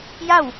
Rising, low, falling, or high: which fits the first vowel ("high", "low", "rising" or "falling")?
falling